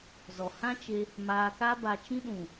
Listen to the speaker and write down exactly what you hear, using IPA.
zɔ˨hã˦t͡ʃe˧ | maː˧ka˦ba˧t͡ʃĩ˦ ɗũ˨

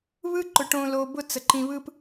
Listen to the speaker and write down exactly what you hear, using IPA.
βɯ˦ǃʊ˨ ʈõ˨lo˨ bʊ˦˨ t͡sə˨ǃĩ˨ βɯ˨p

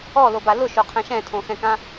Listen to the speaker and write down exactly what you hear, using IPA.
ɔlo balʊʃoqʰɛ̃ ʃɛ̃tʰõxɛ̃kã

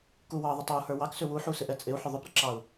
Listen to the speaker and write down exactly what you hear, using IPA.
kuwɑ ðˤətˤɑu̯hə˞ wɑksʏ wuħusɪʔɛ t͡sʼɪu̯ħʏ ðˤʏpɾəǁɑu̯

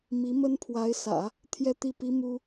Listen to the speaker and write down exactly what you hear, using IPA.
mi˧˥mə˥n pʰwa˧˥ɪ̯sä̰˨˩˦ | t̪ʰjɛ˥t̪i˥˩pi˥ mu˥

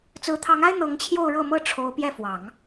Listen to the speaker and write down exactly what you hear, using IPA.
t͡sɹ̩˧˥t̪ʰɑ˧˥ŋa˥ɪ̯ n̪ɤ˧˥ŋt͡ɕʰjo˥˧ʊ̯ ɻɤ˥˩mɤ˥ ʈ͡ʂʰo˧˥ʊ̯ pjɛ˥˩fwɑ˨˩˦ŋ

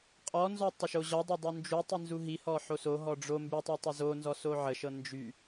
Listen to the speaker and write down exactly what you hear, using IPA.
qʼɔnzɔ tˤəʃoʑɔdˤə dˤund͡ʒutˤi nzuɦihɔ ħosoɦɔ ɖ͡ʐo mbytˤɤ tˤɤzonzɔ soʕəʃɤ nd͡ʒy

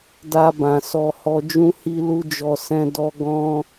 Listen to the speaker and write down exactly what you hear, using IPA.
da˧bã˨ sɔ˧ hɔ˧ d͡ʒũ˦hi˦lu˦d͡ʒɔ˧ sɛ̃˦dɔ˦ ɡɔ̃˦

